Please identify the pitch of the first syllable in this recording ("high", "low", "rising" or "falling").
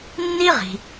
high